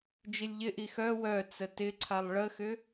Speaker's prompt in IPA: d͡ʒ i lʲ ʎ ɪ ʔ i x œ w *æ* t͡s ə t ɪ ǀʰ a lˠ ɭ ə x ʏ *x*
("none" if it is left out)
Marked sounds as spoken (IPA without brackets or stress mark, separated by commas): œ, none